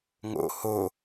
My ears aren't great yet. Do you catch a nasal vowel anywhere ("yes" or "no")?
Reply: no